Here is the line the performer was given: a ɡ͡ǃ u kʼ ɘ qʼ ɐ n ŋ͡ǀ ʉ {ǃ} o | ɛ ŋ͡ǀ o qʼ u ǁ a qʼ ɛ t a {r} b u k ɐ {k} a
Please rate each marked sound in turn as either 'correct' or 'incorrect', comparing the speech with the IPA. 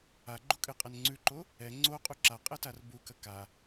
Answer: correct, correct, correct

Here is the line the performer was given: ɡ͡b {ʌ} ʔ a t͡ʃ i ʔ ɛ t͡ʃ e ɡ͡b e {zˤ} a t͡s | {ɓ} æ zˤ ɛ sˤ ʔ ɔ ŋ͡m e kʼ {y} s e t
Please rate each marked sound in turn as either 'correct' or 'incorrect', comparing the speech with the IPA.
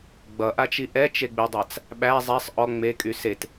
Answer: correct, incorrect: dˤ, correct, correct

